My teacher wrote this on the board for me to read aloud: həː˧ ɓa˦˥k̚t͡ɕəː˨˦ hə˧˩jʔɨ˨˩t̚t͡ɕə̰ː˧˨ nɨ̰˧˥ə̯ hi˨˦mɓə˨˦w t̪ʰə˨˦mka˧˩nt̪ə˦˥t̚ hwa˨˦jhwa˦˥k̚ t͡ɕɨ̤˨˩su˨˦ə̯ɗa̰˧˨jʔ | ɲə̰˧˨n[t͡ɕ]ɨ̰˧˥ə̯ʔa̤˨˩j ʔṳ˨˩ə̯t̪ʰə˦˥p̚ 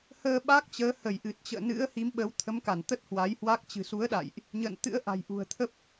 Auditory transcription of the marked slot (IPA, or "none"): t̪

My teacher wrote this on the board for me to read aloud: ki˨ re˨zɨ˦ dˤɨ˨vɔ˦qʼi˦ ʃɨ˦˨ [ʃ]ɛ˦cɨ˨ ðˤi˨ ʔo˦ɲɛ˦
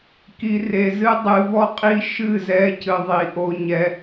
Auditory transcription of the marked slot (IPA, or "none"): z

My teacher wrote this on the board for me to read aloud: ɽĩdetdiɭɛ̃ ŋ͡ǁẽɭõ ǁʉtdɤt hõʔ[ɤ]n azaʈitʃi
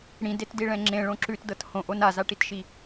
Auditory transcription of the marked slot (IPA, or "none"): o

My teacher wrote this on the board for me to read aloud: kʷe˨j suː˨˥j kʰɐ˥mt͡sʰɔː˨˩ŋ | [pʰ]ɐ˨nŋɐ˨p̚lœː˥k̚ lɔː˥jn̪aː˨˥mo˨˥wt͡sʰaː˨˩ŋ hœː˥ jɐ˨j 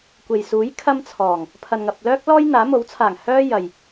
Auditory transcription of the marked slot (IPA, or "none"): pʰ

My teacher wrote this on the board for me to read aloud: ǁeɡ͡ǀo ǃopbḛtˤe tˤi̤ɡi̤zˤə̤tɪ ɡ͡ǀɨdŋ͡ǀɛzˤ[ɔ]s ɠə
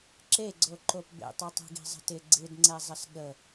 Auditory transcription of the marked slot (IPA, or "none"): ə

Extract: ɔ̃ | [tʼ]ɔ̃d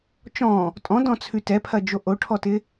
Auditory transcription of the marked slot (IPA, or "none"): tʼ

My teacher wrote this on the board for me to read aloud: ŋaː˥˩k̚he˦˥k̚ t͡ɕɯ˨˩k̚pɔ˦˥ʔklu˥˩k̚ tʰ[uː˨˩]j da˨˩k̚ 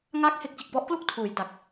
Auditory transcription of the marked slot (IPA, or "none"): uː˩˦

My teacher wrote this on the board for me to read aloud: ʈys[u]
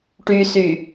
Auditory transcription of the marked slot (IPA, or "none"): y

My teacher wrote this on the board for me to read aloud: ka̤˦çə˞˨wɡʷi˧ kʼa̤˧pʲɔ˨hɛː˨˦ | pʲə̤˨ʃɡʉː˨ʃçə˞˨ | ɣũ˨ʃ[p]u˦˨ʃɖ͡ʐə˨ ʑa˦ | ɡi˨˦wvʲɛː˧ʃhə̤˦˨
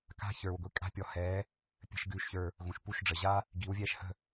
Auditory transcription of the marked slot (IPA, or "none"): p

